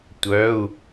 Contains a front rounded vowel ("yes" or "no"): yes